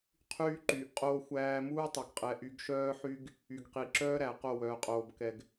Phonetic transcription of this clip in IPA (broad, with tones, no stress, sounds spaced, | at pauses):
qʰ yː˦ ǃ yː˨ ʔ qʼ oː˦ xʷ æː˦ m uː˦ tˤ œ˨ ɡ qʼ ɛ˨˦ ʔ y˨˦ ɡ ʃ œː˦ ħ y˦ ɡ | y˨ ɡ q i˨ ǁ œː˦ ɾ æ˨ q o˦˨ w œː˨ qʼ oː˨ b k ɛ˨ ɡ